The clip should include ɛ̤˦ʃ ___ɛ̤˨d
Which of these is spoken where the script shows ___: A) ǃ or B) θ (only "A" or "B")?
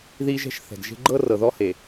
B